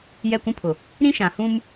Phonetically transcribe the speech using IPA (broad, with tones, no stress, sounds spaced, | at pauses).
j ɛ˦˨ kʷ ũ˦ pʰ ʊ˨ | ɾ ĩ˦ ʃ ã˨ h ũ˦ m